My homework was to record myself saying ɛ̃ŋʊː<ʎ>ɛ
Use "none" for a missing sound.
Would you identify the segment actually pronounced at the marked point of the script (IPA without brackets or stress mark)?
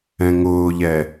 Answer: ʎ